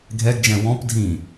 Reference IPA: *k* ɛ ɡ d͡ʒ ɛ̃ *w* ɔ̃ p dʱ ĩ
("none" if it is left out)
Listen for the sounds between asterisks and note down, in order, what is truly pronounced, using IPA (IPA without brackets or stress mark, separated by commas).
ɡʱ, w